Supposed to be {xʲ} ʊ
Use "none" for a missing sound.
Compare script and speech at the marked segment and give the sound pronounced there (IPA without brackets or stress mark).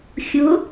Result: xʲ